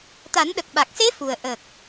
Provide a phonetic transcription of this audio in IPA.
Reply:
t̪a˨˩˦n ɗə˨˩k̚ɓa˨˩k̚se˧˥ fu˨˩ə̯ ʔə˨˩k̚

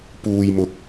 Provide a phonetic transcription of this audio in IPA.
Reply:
puː˧jmʊ˧k̚

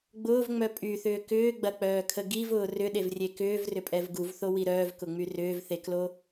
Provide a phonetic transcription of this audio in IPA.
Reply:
ɡ͡bʊːvŋ͡mœ pʼyθʏː kʏːɡ͡bɐk͡pœːkʰə ɡivʊː rʏɗevrʲe kʏːvrʏpʼɛv ɡuvθowi ɾœːvkʊŋ͡my rʏːvθeklo

